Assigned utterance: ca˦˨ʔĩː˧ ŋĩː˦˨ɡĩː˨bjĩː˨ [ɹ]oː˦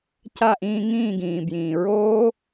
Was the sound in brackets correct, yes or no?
yes